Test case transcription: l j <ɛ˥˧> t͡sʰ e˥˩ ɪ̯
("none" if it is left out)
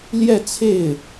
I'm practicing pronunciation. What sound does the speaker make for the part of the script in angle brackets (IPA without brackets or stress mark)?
ɛ˥˧